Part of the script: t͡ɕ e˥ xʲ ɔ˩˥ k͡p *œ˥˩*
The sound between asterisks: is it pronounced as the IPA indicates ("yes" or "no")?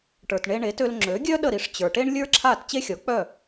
yes